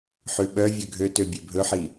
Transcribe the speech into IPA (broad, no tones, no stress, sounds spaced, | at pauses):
ħ ʉ ɓ œ vʲ ø ɡʱ ø t ø bʲ e bʱ ɵ ħ i